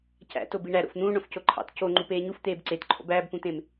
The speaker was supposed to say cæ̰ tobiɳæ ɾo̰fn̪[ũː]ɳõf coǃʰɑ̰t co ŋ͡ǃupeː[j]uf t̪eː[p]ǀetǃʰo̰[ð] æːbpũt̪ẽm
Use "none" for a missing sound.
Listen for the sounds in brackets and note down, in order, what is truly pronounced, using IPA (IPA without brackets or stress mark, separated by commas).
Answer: ũː, ɲ, b, b